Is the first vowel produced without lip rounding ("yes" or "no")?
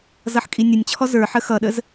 yes